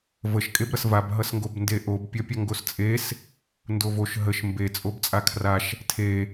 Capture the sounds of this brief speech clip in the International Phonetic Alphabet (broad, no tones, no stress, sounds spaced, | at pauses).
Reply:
v ə ʃ kʼ e b ɾ ʌ s v a b ɦ ʌ s ŋ ɡ o b n d e ʔ o b pʲ ʌ pʲ ʌ ŋ ɡ o s t͡sʼ e s | n d o v o ʃ ɦ ə ʃ m b e t͡sʼ o b t͡sʼ a kʰ r a ʃ | tʰ e